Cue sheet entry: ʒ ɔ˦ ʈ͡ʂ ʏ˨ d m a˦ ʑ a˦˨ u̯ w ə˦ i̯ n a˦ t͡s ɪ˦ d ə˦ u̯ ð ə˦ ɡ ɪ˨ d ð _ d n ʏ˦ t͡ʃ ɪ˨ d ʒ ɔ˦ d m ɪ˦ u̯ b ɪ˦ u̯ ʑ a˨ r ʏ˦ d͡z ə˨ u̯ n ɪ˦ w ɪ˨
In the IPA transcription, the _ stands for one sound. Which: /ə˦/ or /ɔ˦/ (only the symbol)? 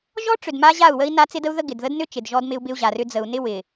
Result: ə˦